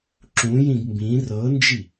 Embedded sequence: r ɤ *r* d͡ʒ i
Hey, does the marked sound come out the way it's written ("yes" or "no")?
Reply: no